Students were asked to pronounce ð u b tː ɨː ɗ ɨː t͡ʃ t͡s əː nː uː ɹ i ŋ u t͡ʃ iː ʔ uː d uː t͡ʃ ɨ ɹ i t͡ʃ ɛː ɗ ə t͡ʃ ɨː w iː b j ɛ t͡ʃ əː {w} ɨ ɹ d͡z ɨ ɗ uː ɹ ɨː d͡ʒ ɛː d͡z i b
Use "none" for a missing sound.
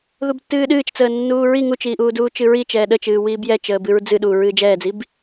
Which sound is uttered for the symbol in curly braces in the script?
b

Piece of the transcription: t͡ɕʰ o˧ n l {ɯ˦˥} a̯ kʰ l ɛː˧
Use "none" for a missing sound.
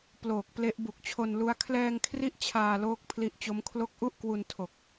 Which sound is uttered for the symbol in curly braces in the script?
u˦˥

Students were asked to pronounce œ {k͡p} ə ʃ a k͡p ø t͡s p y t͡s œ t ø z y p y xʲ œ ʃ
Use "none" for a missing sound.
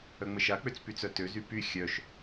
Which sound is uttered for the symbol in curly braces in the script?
ŋ͡m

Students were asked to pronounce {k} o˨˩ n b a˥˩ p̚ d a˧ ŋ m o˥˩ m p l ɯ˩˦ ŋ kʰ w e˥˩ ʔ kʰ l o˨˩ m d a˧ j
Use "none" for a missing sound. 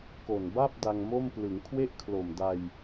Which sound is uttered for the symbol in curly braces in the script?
k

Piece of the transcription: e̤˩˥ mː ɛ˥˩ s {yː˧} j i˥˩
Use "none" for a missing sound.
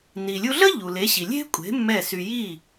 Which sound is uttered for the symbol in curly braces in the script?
y˧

